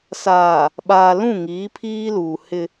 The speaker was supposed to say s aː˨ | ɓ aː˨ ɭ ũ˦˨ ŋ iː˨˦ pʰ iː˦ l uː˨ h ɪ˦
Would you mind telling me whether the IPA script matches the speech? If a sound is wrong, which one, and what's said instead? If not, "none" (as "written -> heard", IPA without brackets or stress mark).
ɭ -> l